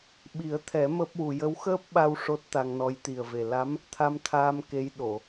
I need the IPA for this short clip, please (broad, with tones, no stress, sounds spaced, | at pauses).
ɓ i˨˩˦ ə̯ t̪ʰ ɛ˨˩˦ m əː˦˥ p̚ w u˧ j ə˧˥ w x əː˦˥ p̚ ɓ a˧ w ʂ o˦˥ t̚ t̪ a˧ ŋ n ɔ˧˥ j t̪ i˨˩ ə̯ v e˨˩ l a˧˥ m | t̪ʰ a˧ m t̪ʰ aː˧ m k e˧˥ j ɗ o˨˩˨